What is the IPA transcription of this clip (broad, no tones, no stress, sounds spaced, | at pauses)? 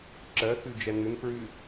ǁ ɜ x ʉ d͡ʒ ɛ n ʉ n f ɹ ʉ